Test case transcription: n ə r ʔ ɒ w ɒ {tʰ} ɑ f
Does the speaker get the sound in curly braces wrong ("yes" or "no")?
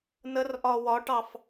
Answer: yes